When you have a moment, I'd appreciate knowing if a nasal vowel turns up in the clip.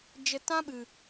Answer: yes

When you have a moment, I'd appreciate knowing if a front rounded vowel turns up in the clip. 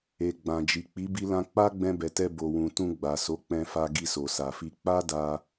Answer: no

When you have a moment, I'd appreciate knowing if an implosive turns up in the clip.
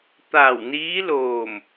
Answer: no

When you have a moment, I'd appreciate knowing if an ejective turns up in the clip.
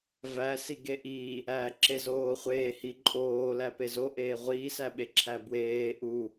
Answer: yes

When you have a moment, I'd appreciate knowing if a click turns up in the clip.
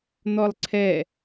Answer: yes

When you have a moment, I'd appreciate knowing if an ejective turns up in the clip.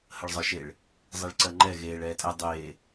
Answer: yes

